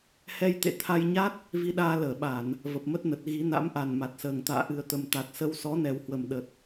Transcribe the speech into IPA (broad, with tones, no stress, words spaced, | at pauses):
hɛ˧jt̪ḛ˧˨ t̪ʰa˧jɲa˦˥t̚ | vi˧ɗaː˧ ləː˧˩ɓa˧˩˨n | və˨˩p̚mə˦˥t̚nə˨˩t̚ ɣi˨˦ na̰˧˥mʔa˨˩nma˨˩t̚səː˨˩ŋ t̪a̰ː˧˨ʔɨ˨˩ə̯t̪ə˨˩m t̪a˨˩t̚sə˧wsɔ˨˦ nɛ˨˩whwə˨˩m ɗə˨˩t̚